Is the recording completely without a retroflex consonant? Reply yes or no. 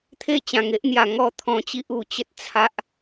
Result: yes